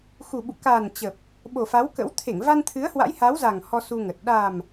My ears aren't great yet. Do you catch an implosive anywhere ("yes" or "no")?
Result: yes